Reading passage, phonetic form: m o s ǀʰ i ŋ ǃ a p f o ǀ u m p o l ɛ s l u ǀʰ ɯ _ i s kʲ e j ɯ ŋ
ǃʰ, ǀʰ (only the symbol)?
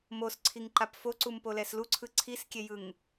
ǀʰ